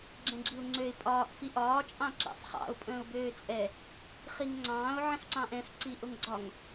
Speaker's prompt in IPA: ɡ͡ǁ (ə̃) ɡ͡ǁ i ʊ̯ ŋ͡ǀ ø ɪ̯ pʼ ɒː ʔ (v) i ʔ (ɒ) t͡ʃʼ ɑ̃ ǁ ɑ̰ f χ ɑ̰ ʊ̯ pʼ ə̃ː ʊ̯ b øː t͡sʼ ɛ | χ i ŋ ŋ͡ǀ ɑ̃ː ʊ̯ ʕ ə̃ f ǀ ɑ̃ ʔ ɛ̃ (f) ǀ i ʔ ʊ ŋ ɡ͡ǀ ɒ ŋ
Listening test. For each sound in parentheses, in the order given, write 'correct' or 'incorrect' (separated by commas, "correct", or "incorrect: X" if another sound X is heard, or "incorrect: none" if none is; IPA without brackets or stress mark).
incorrect: ɛ̃, incorrect: f, incorrect: ɒː, correct